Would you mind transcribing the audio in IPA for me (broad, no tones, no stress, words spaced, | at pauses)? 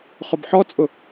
χʊbħɔt͡sʼʊ